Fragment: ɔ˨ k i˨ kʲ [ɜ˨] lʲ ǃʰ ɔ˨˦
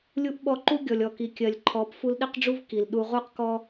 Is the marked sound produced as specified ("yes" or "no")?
yes